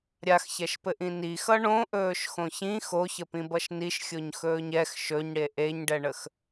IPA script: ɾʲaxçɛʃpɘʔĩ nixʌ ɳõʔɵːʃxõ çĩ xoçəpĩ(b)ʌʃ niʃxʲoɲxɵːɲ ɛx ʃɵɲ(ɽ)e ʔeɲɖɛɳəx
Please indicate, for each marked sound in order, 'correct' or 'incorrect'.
correct, correct

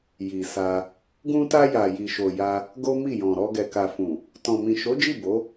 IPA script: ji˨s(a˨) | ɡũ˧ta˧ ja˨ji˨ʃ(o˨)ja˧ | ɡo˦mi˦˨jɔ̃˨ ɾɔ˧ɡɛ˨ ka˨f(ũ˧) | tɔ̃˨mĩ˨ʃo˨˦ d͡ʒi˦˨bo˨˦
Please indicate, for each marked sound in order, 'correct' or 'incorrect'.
incorrect: a˧, correct, incorrect: ũ˨

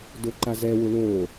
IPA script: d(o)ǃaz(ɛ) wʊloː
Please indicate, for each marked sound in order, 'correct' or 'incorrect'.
correct, correct

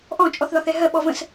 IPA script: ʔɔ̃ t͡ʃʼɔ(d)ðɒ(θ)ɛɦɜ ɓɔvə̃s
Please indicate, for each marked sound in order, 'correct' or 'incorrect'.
incorrect: θ, correct

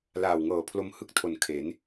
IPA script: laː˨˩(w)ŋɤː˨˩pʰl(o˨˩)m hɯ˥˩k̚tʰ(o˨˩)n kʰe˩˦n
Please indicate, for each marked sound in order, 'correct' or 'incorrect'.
correct, incorrect: o˧, correct

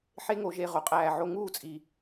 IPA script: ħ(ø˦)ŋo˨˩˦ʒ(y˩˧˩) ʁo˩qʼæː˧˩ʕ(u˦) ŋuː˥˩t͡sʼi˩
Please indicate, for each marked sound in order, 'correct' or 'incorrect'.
incorrect: e˦, incorrect: e˩˧˩, incorrect: o˦

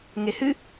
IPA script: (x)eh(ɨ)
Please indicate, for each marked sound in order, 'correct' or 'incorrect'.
incorrect: ŋ, correct

